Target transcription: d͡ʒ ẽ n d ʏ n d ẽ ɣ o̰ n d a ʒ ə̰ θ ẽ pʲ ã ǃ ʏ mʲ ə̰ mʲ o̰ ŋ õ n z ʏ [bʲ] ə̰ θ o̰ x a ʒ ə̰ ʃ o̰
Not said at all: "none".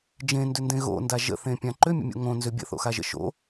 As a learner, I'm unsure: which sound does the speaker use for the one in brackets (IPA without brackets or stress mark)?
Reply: bʲ